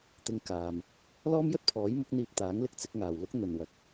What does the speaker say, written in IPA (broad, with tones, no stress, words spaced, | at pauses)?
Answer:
t̪ɪ˧ŋkaː˨m | lɔː˥mjɵ˥t̚pʰɔː˨˥jmʊ˨˥k̚ n̪iː˧p̚t̪aː˨˥ŋlɪ˧k̚ t͡sɪ˨˥k̚ŋaː˨wlʊ˥k̚ n̪ɵ˨nwɐ˨k̚